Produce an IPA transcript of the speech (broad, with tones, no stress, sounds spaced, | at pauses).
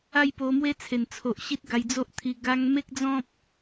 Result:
a˦ j p o˧ m w e˦ t͡sʰ e˨˩ n t͡sʰ o˨ ʔ ɕ i˦ t̚ ɡ a˧ j d͡z o˦ ʔ t̪ʰ i˧ ɡ a˧ ŋ m e˦ k̚ d͡z ɔ̃˦ p̚